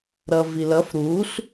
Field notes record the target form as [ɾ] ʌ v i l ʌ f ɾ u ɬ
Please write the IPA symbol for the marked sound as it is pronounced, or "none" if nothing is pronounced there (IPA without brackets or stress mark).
ɾ